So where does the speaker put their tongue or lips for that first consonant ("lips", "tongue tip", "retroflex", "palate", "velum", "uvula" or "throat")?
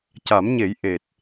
palate